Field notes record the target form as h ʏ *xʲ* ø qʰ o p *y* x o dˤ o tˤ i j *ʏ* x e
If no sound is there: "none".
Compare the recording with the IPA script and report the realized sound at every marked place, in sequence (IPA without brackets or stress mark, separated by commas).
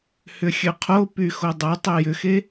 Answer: xʲ, y, ʏ